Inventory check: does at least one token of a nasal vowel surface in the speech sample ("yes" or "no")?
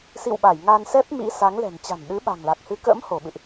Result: no